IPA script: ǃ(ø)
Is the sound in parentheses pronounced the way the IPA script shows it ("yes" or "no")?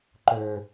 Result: yes